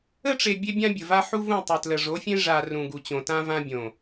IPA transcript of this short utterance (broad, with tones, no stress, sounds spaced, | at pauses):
ə˦ ʈ͡ʂ e˨ bʲ e˦ bʲ ã˦ bʲ ə˨ v a˦ ħ u˦ v ũ˦˨ tˤ ʏ˨ t l ə˨ ʐ o˨˦ fʲ ẽ˦ ʐ a˨ r ũ˨ ɡ u˨ t͡ɕ õ˨ t ã˦ v ã˦ bʲ õ˨